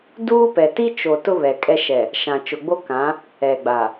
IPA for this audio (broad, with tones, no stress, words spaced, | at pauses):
duː˦pɛ˨ ti˦t͡ʃo˨ tʊ˦ βɛ˨kʼɛ˦ ʃɛ˨ | ʃã˨t͡ʃʊ˨ɡ͡bo˦kã˨˦ | ɛ˨ɡ͡ba˨